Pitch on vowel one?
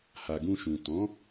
low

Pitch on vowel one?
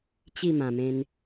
falling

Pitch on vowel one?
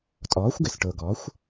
rising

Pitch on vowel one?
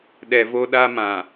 low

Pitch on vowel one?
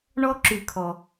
high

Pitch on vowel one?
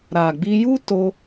low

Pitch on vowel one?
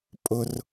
high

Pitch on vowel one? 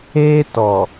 high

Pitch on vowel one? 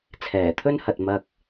low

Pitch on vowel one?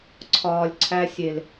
low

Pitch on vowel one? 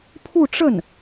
falling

